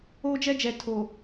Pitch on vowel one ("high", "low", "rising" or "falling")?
high